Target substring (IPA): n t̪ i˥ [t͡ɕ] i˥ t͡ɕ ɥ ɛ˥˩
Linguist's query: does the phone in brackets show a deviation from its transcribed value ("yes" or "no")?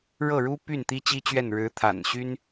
no